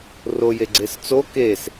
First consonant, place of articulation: alveolar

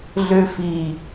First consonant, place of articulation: alveolar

